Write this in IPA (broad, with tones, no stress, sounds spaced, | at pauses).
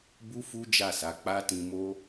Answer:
b u˦ f u˦ d͡ʒ a˦˨ s a˨˦ k͡p a˦ t ĩ˧ m o˦